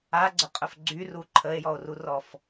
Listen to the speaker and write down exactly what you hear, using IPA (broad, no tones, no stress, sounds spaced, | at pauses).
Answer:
a ɡ͡ǀ ə qʼ ʊ f ɡ͡ǀ y r u ǃʰ ə e̯ j ɔ o̯ r u r ɔ f